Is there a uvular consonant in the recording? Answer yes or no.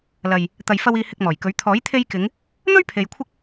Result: no